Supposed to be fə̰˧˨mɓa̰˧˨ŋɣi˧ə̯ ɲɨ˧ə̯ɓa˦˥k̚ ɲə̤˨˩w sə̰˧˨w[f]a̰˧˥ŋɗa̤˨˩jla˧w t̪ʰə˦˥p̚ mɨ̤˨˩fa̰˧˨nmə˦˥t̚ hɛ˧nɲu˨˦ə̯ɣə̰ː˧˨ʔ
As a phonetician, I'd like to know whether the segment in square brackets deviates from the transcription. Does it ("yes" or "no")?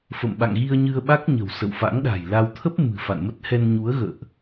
no